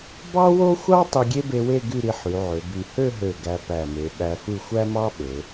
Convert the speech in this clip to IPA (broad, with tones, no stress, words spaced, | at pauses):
bɑ˥wo˥xʷɑ˥ tˤɯ˧ɡʲe˥be˧we˥˧ ɡy˥˧ɾi˧ħy˩˧ ʕø˩˧by˧˩ hø˥˧ɦø˧˩ ɡæ˧pæ˧˩me˩˧ ɓæ˧fɯ˥˧ xʷæ˥mɑ˥ɓø˩˧